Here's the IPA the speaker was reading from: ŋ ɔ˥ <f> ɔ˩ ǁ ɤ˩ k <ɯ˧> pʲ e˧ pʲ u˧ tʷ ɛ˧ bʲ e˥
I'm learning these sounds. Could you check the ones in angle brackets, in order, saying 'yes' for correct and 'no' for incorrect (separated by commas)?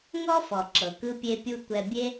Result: yes, yes